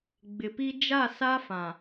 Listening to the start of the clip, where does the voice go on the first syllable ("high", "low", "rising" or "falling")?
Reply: low